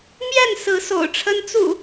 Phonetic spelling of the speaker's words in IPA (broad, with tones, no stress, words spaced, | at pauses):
mjɛ˥˨nsɹ̩˨˦ so̰˨˩ʊ̯ʈ͡ʂʰə˦n t͡sṵ˨˩